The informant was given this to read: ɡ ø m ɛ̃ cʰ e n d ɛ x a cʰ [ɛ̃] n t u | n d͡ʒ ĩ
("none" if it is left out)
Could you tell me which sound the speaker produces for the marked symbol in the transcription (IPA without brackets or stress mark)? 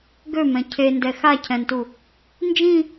ɛ̃